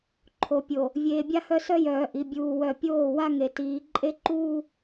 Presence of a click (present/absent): present